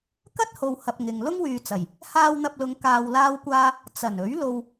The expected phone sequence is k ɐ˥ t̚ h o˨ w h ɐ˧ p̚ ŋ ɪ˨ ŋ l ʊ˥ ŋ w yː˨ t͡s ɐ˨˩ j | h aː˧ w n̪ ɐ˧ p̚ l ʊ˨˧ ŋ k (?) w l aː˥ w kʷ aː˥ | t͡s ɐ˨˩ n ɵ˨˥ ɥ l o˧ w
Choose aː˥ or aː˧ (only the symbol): aː˧